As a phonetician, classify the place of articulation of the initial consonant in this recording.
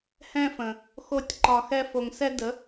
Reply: glottal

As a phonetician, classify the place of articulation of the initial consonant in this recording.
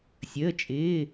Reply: alveolar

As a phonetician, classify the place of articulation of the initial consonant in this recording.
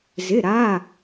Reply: alveolar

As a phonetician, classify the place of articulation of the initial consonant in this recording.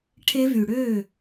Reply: retroflex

